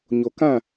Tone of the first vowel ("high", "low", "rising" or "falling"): low